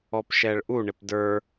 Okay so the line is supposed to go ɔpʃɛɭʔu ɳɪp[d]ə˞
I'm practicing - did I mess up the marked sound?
no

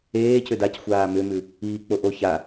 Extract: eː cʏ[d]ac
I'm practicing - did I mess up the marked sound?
no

